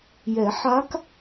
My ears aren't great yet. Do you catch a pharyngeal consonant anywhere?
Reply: yes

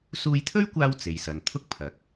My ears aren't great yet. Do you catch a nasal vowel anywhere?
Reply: no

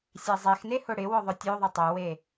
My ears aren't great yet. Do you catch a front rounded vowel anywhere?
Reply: yes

